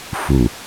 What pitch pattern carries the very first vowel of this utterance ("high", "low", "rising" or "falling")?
low